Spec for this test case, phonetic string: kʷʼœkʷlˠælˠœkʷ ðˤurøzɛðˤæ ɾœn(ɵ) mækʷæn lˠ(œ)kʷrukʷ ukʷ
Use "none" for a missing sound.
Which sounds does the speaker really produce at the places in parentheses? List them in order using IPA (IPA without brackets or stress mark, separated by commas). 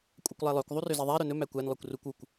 ɵ, œ